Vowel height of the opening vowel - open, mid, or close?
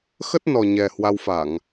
mid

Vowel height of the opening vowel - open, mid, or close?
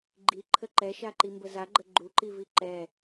close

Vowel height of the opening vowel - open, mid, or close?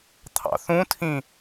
open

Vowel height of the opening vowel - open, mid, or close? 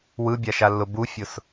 close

